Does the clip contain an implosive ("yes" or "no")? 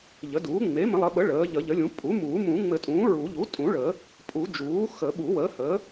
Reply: yes